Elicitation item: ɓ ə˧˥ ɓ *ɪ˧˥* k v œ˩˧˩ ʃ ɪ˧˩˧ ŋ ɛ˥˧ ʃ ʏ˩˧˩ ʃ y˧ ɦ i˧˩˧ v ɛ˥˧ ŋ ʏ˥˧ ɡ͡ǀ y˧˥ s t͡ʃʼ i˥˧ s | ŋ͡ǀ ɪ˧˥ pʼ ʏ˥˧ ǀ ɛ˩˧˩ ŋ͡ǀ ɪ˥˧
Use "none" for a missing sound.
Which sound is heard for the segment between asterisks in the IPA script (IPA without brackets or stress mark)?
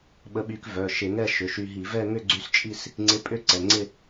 y˧˥